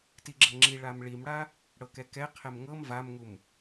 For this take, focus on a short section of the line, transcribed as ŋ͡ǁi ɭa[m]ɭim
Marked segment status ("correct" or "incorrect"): correct